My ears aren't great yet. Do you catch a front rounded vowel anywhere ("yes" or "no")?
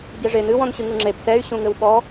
yes